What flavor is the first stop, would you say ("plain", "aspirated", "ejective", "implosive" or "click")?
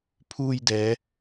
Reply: aspirated